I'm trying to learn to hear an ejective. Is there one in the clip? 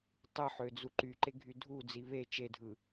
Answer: no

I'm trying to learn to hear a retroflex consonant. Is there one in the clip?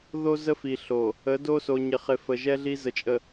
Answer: no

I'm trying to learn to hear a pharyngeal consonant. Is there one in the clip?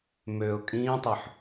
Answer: yes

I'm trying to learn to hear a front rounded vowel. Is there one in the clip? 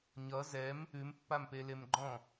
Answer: no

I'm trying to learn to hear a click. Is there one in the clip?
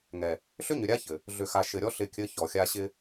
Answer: no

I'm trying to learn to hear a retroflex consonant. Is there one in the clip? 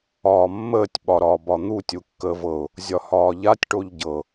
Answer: yes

